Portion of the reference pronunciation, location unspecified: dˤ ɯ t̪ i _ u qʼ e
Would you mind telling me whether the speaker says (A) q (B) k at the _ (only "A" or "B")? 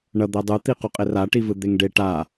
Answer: A